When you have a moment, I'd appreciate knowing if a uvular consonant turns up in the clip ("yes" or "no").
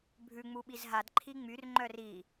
no